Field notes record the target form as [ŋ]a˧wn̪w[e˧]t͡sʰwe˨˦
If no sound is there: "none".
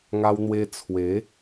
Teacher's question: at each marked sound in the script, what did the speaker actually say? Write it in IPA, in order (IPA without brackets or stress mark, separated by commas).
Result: ŋ, e˧